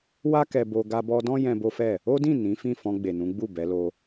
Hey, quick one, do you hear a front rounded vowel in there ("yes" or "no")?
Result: no